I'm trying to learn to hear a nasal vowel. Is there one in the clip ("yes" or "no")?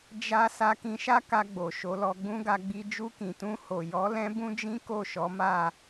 yes